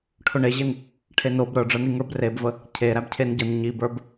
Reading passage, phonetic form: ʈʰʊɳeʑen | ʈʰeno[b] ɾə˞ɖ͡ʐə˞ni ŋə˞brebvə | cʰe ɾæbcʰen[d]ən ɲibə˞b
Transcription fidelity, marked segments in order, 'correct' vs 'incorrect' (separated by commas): correct, incorrect